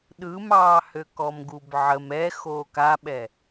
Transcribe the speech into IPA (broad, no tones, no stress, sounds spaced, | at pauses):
ɗ ɯ m ɑː h ø k ɔ m ɡ u b ʕ ə m ɛ x oː k a ɓ ɛ